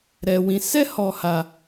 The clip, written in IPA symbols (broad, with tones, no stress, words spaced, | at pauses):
ɾɛ˧wĩ˧ sɛ˦hɔ˧ ha˧